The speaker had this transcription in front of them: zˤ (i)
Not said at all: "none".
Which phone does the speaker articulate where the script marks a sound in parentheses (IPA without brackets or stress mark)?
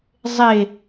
e